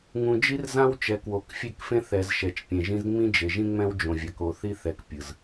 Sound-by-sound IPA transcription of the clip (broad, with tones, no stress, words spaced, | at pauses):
ŋũ˨d͡ʒi˦rzã˦wt͡ʃɛ˨ kwo˨k fʲe˦˨kfẽ˦θɛ˨z ʃɛ˨t͡ʃpʲẽ˨ʒĩ˦z ŋ͡mĩ˦d͡ʒe˨ʒĩ˦ŋ͡mɛ̃˦w d͡ʒõ˨vʲa˨ko˨ θi˦θɛ˨k pʲɯ˨z